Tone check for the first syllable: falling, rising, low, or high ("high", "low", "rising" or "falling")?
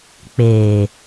low